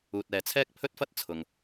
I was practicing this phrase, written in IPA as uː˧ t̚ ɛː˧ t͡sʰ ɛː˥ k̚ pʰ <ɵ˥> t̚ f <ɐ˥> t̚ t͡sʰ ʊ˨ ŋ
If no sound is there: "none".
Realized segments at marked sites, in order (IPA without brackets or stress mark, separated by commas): ɵ˥, ɐ˥